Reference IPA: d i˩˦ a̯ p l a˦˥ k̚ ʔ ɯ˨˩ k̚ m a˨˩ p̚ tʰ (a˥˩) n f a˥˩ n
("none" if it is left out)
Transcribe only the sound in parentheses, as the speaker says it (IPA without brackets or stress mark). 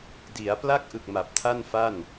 a˥˩